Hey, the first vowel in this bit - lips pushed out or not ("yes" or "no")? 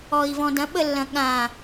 yes